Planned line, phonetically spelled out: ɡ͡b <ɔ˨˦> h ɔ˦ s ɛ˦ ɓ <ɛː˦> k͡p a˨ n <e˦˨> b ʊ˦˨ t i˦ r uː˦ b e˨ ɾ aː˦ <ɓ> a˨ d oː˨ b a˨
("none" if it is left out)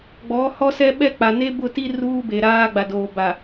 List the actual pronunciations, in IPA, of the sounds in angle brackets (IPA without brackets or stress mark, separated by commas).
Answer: ɔ˨˦, ɛ˦, e˦, ɡ͡b